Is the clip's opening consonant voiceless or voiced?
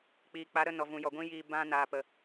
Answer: voiceless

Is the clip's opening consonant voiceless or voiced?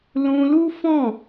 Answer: voiced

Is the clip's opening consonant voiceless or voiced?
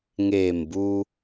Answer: voiced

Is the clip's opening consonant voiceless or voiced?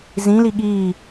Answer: voiced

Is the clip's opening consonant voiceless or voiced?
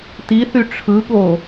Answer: voiceless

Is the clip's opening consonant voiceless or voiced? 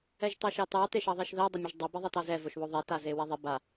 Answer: voiced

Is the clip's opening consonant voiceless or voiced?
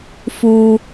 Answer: voiceless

